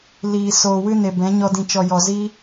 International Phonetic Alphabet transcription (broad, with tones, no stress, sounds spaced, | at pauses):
l iː˨ s oː˨ w ɨ˦ n e˨ b ɛ̃˨˦ ɲ ɔ˧ d ĩ˨ t͡ʃ ɔ˨ j ɔ˨ z i˧